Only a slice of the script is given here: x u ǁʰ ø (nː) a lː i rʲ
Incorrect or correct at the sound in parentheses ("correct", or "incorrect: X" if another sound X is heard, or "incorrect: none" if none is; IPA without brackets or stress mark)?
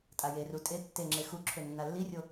correct